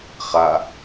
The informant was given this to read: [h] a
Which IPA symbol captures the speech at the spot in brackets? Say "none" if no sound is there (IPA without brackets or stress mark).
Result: χ